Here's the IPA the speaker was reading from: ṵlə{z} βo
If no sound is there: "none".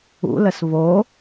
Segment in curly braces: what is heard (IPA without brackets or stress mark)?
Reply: s